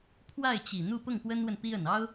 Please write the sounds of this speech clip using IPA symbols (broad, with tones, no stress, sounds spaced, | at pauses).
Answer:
pʰ w a˥˩ ɪ̯ t͡ɕ i˨˩ n̪ u˥˧ p ʊ˥˩ ŋ p w ə˥ n w ə˨ n p i˥ ə˨˩ n ɑ˥ ʊ̯